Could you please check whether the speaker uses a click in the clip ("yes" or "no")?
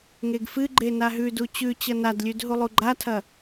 yes